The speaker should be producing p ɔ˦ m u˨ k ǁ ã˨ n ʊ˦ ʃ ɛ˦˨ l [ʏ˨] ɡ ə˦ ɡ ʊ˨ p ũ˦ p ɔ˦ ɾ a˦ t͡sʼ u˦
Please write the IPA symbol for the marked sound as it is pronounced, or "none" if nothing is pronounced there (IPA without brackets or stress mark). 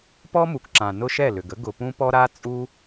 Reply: ʏ˨